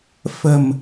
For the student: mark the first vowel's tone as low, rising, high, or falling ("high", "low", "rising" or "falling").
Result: low